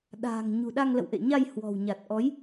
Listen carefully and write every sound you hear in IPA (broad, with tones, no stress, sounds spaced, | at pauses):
ɗ a̤ː˨˩ ŋ ɲ ṳ˨˩ ɗ a˧ ŋ l ə̰˧˨ w ʔ ḛ˧˨ ɲ a˧ j h w ɔ̤˨˩ w ɲ a˨˩ t̚ ʔ ɔ˨˦ j